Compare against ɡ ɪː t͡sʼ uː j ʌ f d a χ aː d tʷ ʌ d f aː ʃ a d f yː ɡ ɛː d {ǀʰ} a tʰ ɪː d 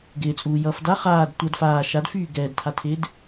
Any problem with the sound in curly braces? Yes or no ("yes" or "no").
yes